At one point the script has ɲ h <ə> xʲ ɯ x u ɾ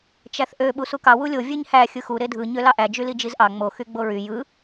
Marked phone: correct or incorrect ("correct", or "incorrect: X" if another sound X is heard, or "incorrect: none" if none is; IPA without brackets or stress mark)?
incorrect: æ